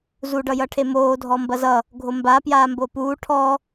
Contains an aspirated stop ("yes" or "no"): yes